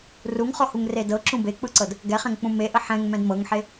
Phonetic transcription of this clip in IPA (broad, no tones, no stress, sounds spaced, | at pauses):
r u ŋ χ ɔ h u ŋ r e d ɤ ǁ ũ b e k͡p ɯ ǀ ɤ d | ɡ ɛ χ ɛ̃ ŋ k͡p ũ m e ʔ ə ħ ɛ̃ ŋ m ɛ̃ d m ɤ ŋ ħ e